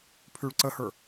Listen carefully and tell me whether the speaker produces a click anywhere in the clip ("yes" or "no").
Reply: yes